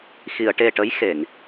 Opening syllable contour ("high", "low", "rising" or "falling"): low